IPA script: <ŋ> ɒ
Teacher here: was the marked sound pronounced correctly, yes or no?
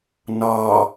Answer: no